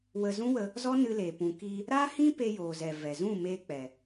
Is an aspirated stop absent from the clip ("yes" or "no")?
yes